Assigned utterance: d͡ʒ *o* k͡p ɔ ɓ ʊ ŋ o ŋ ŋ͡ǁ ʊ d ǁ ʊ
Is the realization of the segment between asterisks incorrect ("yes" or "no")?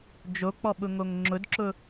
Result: no